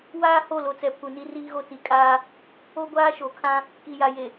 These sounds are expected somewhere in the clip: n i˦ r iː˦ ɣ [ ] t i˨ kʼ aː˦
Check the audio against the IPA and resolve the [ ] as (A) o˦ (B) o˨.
A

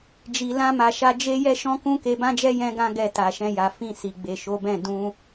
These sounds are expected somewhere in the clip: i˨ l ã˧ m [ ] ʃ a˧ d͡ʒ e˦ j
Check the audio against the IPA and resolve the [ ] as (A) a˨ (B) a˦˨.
A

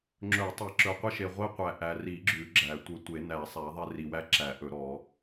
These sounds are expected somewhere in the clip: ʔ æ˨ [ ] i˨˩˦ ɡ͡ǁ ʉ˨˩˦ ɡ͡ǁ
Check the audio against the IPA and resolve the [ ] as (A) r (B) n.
A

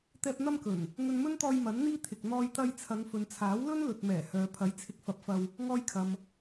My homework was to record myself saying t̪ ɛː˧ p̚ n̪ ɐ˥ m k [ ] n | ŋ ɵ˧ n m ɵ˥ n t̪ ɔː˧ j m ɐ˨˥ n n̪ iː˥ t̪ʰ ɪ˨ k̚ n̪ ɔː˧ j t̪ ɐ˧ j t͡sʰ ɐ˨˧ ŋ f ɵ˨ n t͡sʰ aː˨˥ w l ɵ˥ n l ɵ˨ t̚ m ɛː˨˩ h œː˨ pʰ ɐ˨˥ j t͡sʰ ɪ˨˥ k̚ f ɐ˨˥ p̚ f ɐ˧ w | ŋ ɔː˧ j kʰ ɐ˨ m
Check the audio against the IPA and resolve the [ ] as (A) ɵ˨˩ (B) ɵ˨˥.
A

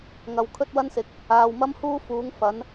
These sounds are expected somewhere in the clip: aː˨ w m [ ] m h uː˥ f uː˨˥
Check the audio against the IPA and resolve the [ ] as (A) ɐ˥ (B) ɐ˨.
A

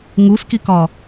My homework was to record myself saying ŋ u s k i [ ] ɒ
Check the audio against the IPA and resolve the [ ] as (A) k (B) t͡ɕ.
A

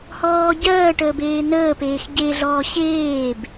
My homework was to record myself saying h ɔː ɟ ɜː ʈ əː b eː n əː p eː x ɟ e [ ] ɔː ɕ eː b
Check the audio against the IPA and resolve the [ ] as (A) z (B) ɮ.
B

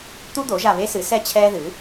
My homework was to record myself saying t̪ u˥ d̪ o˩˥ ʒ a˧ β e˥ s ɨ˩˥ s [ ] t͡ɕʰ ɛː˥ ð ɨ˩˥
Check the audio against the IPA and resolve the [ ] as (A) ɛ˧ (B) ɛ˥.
B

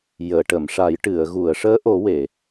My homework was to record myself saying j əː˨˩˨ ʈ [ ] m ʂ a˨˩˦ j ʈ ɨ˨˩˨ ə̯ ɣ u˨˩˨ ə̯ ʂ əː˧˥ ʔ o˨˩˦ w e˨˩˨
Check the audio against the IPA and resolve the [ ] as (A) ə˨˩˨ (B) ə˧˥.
A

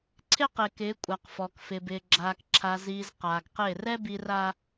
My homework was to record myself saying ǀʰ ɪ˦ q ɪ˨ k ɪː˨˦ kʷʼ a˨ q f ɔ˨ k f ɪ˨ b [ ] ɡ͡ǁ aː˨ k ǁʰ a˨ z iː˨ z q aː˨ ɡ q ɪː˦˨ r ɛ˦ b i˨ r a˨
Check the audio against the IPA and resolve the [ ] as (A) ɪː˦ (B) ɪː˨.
B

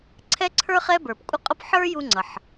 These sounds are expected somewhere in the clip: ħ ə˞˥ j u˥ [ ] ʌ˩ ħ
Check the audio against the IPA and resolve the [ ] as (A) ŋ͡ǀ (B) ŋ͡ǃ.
A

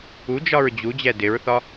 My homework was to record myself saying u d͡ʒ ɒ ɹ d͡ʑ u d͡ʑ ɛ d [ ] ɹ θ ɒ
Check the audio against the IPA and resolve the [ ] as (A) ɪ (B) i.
A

